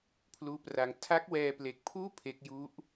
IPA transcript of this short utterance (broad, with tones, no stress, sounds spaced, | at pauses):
pʰ l uː˦˥ p r a˧ ŋ tʰ a˦˥ k̚ w ɛː˧ p l e˨˩ k̚ pʰ uː˥˩ pʰ e˦˥ k̚ j u˦˥ ʔ